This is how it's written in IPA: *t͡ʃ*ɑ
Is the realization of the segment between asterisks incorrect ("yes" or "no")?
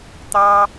yes